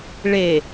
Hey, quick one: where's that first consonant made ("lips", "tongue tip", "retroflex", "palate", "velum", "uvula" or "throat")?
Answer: retroflex